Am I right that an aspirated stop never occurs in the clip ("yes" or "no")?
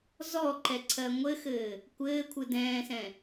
no